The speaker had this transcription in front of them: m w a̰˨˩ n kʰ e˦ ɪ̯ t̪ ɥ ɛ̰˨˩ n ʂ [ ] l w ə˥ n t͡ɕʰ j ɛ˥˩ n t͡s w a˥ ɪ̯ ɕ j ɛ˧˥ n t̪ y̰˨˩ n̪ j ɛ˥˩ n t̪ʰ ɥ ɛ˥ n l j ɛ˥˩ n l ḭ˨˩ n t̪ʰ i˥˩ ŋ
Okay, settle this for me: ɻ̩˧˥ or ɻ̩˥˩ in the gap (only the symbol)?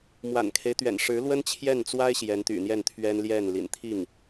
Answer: ɻ̩˧˥